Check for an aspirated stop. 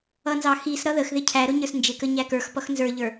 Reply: present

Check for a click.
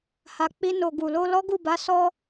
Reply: absent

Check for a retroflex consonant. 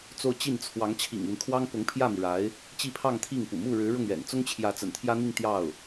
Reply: present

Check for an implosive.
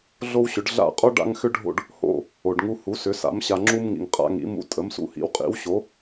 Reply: absent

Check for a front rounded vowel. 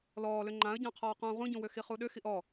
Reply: present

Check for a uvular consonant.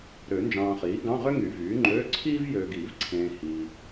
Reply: present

